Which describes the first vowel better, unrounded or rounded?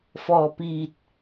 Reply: rounded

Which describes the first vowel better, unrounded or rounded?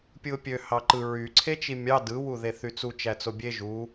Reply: unrounded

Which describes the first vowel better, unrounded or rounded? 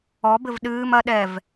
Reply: rounded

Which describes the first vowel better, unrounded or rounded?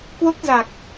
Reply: rounded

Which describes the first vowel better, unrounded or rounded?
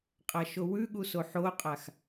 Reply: unrounded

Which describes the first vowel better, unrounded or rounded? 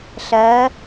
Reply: unrounded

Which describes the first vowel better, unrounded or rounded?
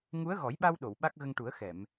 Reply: rounded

